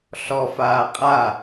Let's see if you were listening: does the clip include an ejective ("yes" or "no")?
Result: yes